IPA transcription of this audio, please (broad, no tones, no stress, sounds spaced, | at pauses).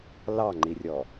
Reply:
l ɑ ŋ͡ǃ i rʲ ɔ